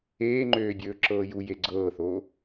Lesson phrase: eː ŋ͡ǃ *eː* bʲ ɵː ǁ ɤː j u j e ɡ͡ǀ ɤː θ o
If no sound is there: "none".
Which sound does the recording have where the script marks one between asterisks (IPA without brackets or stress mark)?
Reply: øː